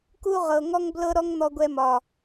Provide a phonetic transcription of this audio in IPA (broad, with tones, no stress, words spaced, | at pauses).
ku˦ʁɤ˨ ŋɔ˦ŋblɤ˦ ɾɔ˦ŋn̪ɔ˧ ɡʷɛ˧mɒ˨